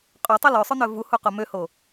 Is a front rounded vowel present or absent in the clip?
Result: present